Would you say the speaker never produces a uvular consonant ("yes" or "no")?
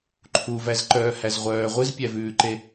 no